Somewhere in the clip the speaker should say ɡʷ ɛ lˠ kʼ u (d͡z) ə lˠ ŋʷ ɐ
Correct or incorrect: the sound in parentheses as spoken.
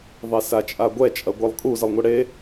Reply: incorrect: z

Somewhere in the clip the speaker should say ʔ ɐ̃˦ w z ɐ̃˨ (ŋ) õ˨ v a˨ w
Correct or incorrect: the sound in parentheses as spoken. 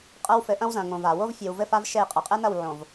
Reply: correct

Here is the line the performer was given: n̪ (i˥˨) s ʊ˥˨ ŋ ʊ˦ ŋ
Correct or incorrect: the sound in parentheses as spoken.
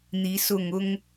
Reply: incorrect: i˨˦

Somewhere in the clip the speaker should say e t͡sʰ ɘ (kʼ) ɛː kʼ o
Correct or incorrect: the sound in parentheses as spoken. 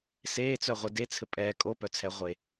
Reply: incorrect: pʼ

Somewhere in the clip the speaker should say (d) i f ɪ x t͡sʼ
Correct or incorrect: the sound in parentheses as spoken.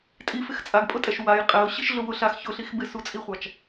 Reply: incorrect: tʼ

